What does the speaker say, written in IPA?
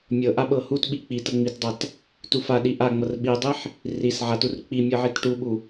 mʲ ɤ ʔ a ɓ ɤ h u t ɓ i k͡p i t ɤ ŋ͡m i t dˤ a t | t u f a ɗ i ʔ a ŋ͡m ɤ r ɓ i dˤ i ħ | r i s ʕ a t u r k͡p i mʲ ɤ ʕ i t ʈ u ɓ u

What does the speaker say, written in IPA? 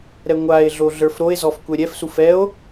ɾ ɛ ŋʷ a e̯ ɮ o ɮ ə˞ f ɾ o e̯ z ɔ f kʷ ɛ ɾʲ ɛ f s u f ɛ o̯

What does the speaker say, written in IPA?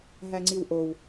ɦ æ ŋ͡ǀ i w ʔ o w

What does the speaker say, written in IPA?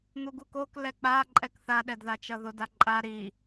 n̪ u ɡ u k o k l ɛ k͡p a ǃʼ ɛ k θ a ɗ ɛ d ð a t͡ʃ ʌ ð o d a ǃʼ a ɾ i

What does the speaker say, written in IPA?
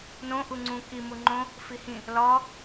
n õ ʔ u ŋ͡ǀ ũ k i m u ŋ͡ǃ õ | f i h ĩ | l ɒ

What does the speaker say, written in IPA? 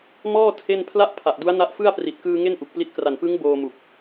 m ɔː˥˩ tʰ e˥˩ n pʰ l a˥˩ ʔ pʰ a˨˩ ʔ d u˦˥ a̯ n a˦˥ ʔ f ɯ˥˩ a̯ p r i˨˩ t̚ k ɯː˧ ŋ e˥˩ n ʔ u˨˩ k̚ p l i˦˥ t̚ k r a˨˩ n p ɯ˦˥ ŋ b oː˧ m u˨˩ k̚

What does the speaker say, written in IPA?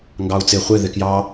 ŋ ɡ ɑ u̯ t͡s ɪ χʷ ɪ ð ɪ k j ɑ

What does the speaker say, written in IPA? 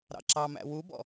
ɾ ɑ̰ ǁ ɑ m æ̰ w u b ɔ̰

